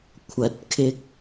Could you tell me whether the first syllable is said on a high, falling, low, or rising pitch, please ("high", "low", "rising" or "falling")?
low